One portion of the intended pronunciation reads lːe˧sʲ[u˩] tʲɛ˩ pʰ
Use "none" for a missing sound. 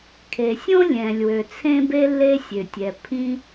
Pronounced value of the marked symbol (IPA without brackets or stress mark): ø˩